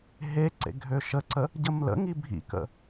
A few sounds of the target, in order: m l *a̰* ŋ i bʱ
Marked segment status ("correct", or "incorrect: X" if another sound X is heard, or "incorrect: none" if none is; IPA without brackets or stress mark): incorrect: ə̰